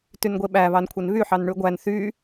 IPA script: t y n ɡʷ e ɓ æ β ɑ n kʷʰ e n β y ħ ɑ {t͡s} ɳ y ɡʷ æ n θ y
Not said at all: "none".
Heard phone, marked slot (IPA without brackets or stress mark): n